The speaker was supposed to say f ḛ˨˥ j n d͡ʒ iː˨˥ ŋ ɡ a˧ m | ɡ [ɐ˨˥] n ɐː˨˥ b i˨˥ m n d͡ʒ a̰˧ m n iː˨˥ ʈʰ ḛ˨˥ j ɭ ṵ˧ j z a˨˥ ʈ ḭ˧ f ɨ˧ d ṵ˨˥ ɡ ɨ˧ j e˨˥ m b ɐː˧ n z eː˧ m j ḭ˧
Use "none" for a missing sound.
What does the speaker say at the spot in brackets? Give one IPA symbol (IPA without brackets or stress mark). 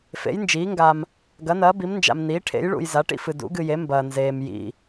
ɐ˨˥